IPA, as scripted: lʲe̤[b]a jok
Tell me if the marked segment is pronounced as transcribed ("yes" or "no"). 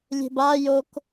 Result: yes